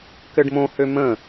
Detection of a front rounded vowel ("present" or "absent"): present